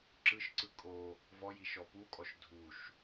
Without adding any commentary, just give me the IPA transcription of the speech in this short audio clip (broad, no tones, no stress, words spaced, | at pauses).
ǁɯʃǀɯ kʼo | vɔji ʃɔpukʼɔʃ dʱuʃ